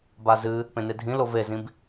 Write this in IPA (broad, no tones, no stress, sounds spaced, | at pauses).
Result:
b a z ɨ | p ẽ n e dʱ ĩ l o v e z ĩ b